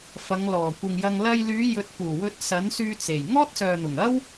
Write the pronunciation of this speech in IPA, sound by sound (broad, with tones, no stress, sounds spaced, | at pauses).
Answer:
f ɐ˨˧ ŋ l ɔː˨˩ kʷ ɪ˨ ŋ j ɐ˧ ŋ l ɐ˧ j l yː˨˧ j ɵ˨˥ t̚ p uː˨˩ w ɵ˧ t̚ s ɐ˨˥ n s yː˧ t͡s e˨˩ j ŋ ɔː˥ t̚ s œː˨ n̪ ʊ˨˩ ŋ ɐ˥ w